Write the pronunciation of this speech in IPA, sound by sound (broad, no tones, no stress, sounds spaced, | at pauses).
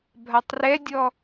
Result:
bʱ a tˤ r ɛ dʲ ɔ